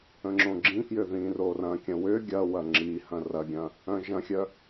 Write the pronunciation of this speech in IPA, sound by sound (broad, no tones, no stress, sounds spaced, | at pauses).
ə̃ ŋ͡ǁ õ ɡ͡ǁ ĩ k j ʏ ð ĩ r o r ɐ̃ kʲ ə̃ w ʏ ɡʲ ɐ w ɐ ŋ͡ǁ i h ɐ̃ r ɐ ɡʲ ɐ̃ | œ̃ ʒ ɐ̃ xʲ œ